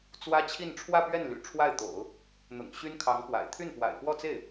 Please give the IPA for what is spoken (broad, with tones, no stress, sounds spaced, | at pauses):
t͡s w ä˥ t͡ɕʰ i˥˧ n ʈ͡ʂʰ w ä˥˧ p ɥ ɛ˥˩ n l y̰˨˩ ʈ͡ʂʰ w a˥˩ ɪ̯ t̪ o̰˨˩˦ ʊ̯ | n̪ ʊ̰˨˩ ŋ ɕ y˥ n kʰ ɑ˧˥ ŋ p w a̰˨˩ ɪ̯ t̪ʰ y˥˩ n p w a̰˨˩ ɪ̯ f w ɔ˥˧ t͡s e˥˩ ɪ̯